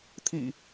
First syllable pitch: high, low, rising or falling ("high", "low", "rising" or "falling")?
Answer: low